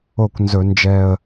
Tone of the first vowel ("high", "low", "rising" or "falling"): falling